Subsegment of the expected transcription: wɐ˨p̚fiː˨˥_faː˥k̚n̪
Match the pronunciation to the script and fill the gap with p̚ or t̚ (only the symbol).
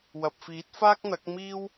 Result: t̚